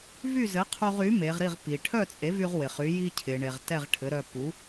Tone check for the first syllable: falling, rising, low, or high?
falling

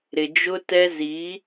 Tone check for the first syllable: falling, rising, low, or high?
low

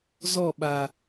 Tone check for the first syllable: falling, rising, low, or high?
falling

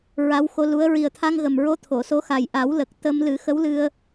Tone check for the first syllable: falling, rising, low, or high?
rising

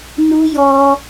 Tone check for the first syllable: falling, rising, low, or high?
high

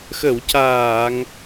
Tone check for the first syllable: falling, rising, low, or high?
low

